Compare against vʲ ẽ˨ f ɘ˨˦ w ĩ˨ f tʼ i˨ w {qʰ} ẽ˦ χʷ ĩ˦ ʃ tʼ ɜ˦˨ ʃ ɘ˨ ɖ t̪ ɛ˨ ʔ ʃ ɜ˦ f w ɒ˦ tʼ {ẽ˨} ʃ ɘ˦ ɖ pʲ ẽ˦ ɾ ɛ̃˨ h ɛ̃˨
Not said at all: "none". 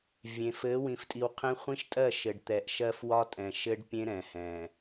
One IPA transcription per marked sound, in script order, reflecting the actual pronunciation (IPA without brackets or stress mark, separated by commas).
qʰ, ɛ̃˨